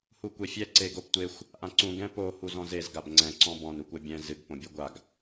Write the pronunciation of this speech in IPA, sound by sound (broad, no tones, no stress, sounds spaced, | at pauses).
h u kʷ e fʲ ɛ ǀ e ɡ o p tʷ e xʷ | ʔ ã ǀ ũ ɡ ɛ̃ p o h u z ɔ̃ z e z ɡ a b ŋ͡ǀ ɛ̃ ǀ ɔ̃ b ɔ̃ n u kʷ ɛ bʲ ɛ̃ z ɨ ɡ p õ bʲ u ɡʷ a ɡ